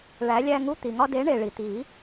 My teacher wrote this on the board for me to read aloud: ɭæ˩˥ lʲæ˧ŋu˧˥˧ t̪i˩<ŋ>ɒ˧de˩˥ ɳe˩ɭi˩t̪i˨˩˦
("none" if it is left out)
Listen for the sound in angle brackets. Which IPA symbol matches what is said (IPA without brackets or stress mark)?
ŋ